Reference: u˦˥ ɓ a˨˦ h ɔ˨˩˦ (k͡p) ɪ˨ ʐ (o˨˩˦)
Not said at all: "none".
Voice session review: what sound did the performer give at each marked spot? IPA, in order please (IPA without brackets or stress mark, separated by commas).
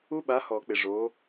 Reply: k͡p, o˨˦